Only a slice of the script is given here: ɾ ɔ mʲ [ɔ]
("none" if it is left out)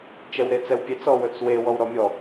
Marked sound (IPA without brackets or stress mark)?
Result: ɔ